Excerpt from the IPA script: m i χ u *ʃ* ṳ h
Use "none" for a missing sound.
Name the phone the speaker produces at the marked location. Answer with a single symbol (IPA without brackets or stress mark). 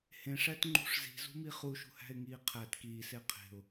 ʃ